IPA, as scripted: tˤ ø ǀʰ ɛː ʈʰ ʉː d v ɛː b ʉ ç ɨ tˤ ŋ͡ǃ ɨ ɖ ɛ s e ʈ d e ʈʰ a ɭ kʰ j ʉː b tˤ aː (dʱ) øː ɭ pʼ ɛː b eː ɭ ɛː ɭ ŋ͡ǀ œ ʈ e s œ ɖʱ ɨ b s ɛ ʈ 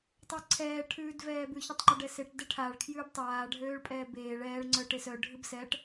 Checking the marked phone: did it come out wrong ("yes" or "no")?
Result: yes